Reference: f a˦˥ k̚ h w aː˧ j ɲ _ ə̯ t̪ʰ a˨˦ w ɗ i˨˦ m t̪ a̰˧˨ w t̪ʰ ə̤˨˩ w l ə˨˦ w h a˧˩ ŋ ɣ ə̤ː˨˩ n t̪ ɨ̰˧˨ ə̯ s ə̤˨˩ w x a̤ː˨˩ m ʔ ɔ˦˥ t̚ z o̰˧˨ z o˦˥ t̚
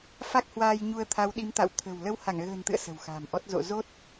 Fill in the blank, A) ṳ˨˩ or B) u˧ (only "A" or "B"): B